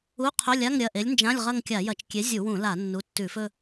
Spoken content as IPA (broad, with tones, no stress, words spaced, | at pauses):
u˧˥˧qʰɵ˧˥˧lʲa˧˥˧ŋ ɾʲɐ˩˧˩ ʔe˨˥lʲnd͡ʒã˧˥˧lʲʁɐ˥˧ŋ kʲa˧˩˧jɐ˧˩˧t͡ʃ kʲe˨˥zʲu˧˩˧wũ˧˩˧ la˧˩˧nːu˩˧˩ tːʉ˧˩˧fɵ˥˧